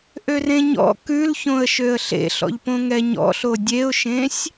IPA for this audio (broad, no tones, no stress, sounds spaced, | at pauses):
ʔ ø r ẽ ɲ ɔ̰ k ʉ l ç õ ə̯ ʃ ø ə̯ ɬ ḛ ɬ ɔ̰ ʎ p õ ŋ ɛ ɲ ɔ̰ ɬ o dʲ e ʊ̯ ʃ ẽ sʲ